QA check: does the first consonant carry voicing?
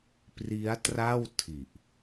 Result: no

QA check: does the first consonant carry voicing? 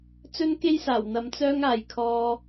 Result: no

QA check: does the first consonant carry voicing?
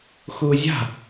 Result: no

